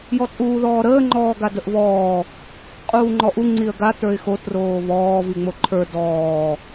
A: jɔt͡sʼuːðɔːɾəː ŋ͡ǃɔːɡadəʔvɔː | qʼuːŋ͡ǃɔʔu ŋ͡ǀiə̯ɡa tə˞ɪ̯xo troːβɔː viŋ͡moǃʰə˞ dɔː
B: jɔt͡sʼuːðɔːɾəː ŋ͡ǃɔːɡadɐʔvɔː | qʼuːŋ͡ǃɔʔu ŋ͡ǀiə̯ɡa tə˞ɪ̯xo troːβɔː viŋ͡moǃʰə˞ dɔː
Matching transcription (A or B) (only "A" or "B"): A